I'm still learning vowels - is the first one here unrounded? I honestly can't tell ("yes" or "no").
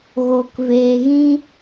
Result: no